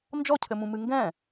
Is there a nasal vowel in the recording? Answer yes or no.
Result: yes